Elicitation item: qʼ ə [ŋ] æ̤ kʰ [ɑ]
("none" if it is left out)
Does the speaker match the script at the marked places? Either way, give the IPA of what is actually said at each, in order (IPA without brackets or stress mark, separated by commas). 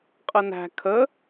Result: n, ə